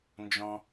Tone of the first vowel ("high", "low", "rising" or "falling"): low